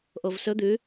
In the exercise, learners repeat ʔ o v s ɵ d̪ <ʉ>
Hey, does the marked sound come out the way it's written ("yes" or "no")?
yes